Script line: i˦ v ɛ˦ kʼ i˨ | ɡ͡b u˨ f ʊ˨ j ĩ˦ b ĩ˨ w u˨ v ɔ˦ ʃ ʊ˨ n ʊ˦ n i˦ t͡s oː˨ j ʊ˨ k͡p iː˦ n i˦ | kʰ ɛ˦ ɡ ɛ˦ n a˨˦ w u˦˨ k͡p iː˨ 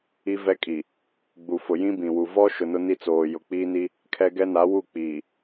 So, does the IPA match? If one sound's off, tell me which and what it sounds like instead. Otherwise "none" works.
none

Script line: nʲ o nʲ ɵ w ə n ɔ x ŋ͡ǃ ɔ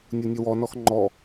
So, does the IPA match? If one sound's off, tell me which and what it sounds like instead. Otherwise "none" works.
ə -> ɔ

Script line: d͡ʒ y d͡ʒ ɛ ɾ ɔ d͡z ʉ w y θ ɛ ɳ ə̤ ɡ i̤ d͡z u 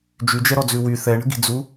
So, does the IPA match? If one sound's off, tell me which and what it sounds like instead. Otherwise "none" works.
none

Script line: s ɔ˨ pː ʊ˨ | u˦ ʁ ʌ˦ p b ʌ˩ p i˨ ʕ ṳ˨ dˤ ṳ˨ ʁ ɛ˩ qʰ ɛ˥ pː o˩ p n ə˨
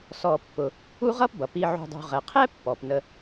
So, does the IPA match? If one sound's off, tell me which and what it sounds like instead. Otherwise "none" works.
o˩ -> ɔ˩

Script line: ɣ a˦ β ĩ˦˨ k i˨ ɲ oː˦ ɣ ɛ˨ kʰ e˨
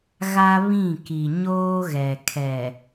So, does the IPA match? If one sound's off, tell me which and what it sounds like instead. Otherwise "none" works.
e˨ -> ɛ˨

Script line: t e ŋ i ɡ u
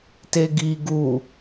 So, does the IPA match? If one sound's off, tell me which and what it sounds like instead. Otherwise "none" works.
ŋ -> ɡ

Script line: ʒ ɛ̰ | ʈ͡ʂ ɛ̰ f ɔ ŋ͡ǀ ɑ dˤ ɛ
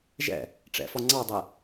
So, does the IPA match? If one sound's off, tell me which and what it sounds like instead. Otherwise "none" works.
none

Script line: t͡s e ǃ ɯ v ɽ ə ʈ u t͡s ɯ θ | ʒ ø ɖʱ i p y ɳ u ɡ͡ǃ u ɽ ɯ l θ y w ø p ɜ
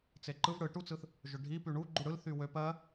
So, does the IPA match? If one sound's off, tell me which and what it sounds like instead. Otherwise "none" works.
ə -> ɯ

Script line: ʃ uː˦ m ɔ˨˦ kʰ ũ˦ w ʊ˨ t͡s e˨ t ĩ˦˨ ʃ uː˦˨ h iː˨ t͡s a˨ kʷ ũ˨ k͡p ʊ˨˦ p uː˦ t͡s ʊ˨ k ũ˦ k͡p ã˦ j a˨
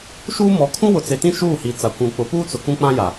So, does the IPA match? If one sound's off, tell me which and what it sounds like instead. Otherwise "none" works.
none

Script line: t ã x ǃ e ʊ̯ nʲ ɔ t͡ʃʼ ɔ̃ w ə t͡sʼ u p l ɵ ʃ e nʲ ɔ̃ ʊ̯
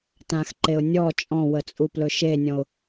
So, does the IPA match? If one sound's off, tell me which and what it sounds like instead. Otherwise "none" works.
none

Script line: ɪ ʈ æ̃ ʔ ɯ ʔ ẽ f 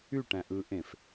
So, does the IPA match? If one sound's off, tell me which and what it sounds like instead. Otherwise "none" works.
ɪ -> y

